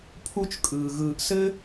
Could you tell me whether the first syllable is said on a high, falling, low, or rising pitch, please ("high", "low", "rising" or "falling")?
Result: high